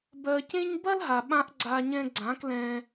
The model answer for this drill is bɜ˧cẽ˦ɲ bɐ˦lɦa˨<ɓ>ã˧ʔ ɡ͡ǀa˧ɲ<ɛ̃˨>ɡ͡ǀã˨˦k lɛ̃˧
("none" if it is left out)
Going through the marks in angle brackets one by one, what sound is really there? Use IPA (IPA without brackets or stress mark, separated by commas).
ɓ, ɛ̃˧